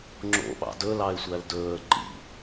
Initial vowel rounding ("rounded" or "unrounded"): rounded